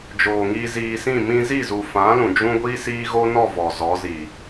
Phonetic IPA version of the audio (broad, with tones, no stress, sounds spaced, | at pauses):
d͡ʒ oː˨ ŋ iː˧ z iː˧ s ĩ˦˨ m ĩ˧ z i˦˨ z u˨ f ã˨˦ l ũ˨ d͡ʒ ũ˦ ɡʷ iː˦ s iː˦ ɣ o˦ n ɔ˦˨ v ɔ˨ z ɔ˨˦ z i˨